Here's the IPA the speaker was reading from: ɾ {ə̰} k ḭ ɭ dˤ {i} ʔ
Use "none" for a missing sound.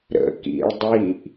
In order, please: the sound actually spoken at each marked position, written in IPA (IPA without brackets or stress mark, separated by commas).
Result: ə̰, i